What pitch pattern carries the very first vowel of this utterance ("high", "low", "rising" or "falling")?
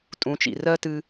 rising